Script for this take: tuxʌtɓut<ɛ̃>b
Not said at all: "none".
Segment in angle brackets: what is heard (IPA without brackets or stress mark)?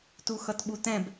ɛ̃